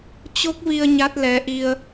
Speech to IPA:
t͡ɕ o˦˥ k̚ v i˧ ə̯ ɲ a˦˥ t̚ l ɛ˨˦ ʔ i˧ ə̯

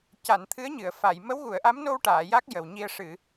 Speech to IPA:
c a˨˩˨ n t̪ʰ ɨ˧˥ ə̯ ɲ ɨ˨˩˨ ə̯ f a˨˩˨ j m ə˧˥ w ɣ u˨˩˨ ə̯ ʔ a˧˥ m n o˧ w ʈ aː˨˩˨ j a˦˥ k̚ j ə˨˩ w ɲ i˧ ə̯ ʂ ɨ˨˩˨

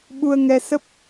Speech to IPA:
ɓ u˧ ə̯ ŋ ɛ˧ s ə˦˥ p̚

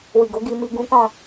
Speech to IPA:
w i˨ ɡ o˨˦ ɡ i˧ m i˧ ɡ ũ˦ k ɔ̃˦˨

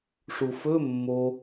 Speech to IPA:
ʂ u f ɵ mː o

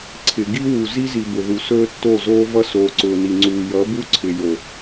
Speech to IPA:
ǀʰ ɪ˨ ɡ i˦ w u˨ z i˦ z i˨ b ʊ˨ ð u˨ s ɵː˦ tː o˦˨ z oː˦ v ʌ˦ s oː˨ ǀ ʊː˨ n i˨ ŋ͡ǀ uː˨ j ʌ˨˦ b u˦ ǀʰ ɪ˨ j o˨

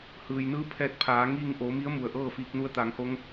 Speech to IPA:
h ɯː˩ j n ɯː˧ pʰ ɛː˧˥ t̚ pʰ aː˩˧ ŋ iː˥˨ ŋ ʔ oː˩˧ m i˧˥ ə̯ m u˩ ə̯ ʔ ɤː˥˨ f iː˧ k̚ n u˧ ə̯ t̪ aː˩˧ ŋ h o˧˥ ŋ

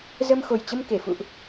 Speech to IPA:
z ə˧ m x o˨˩ j t͡ɕ ə˧ m k e˧˩ f ṵ˧˨ ʔ

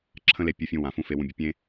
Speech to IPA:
ǁʰ ə̃˦ l e˧ pʲ u˧ fʲ ũ˧ w ã˨ f ũ˦˨ f e˧ w ũ˧ bʲ ə˧ pʲ ẽ˦

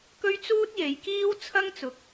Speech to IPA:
k ɵ˥ ɥ t͡s uː˥ t̚ j e˨˧ j k iː˥ w t͡sʰ ɐ˥ ŋ t͡s ʊ˨˥ k̚

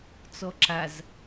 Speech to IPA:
t͡s ɔ ǁ a z

